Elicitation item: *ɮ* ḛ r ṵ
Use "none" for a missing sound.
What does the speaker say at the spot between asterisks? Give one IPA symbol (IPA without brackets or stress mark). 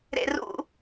ɾ